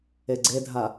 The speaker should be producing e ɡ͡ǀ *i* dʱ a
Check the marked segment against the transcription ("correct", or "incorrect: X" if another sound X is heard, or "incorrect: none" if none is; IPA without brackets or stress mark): incorrect: e